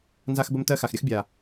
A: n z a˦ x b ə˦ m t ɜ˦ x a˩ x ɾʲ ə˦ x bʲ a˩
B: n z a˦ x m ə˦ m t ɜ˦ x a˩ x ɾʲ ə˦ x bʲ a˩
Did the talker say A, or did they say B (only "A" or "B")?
A